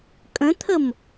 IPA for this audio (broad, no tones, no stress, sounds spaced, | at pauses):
kʼ ə̃ t̪ʰ ə m